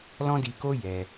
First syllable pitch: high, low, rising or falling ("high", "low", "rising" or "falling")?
high